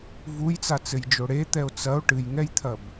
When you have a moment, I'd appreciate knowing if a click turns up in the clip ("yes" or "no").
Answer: no